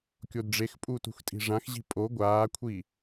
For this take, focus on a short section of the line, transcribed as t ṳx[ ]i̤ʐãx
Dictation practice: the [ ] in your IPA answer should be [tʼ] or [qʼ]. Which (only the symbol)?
tʼ